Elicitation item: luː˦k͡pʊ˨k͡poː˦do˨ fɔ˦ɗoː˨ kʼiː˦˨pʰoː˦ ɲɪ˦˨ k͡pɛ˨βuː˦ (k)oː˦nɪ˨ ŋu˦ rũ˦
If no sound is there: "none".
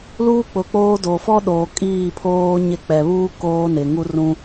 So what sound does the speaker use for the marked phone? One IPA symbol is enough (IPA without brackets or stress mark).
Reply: k